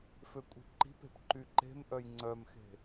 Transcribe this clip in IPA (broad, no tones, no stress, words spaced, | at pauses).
føkʷʼi̤ǃi̤pe̤p ǃyǃe̤mʔœj ŋ͡ǀœmxe̤